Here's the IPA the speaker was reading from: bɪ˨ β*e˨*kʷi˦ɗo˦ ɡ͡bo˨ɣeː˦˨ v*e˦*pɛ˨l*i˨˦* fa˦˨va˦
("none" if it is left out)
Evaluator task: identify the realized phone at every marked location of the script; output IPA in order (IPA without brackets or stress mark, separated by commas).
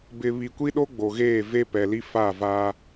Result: i˨, e˦, i˦